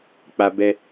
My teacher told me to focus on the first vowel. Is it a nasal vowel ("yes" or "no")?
no